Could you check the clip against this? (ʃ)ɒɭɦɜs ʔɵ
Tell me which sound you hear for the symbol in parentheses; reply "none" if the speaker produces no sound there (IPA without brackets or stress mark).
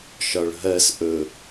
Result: ʃ